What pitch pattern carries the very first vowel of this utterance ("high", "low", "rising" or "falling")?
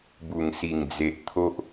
low